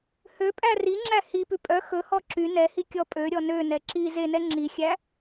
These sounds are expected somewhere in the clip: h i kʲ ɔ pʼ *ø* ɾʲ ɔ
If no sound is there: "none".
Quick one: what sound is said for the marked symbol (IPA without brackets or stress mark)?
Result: ø